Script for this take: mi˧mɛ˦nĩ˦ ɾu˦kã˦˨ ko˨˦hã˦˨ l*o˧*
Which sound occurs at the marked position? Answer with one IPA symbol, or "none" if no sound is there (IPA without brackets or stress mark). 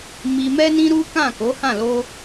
o˧